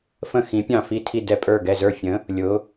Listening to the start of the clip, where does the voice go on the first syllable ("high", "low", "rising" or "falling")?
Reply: falling